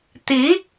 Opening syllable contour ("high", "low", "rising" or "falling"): rising